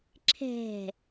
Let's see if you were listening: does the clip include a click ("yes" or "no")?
yes